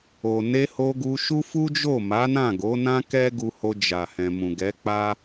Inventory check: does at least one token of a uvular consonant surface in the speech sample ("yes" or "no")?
no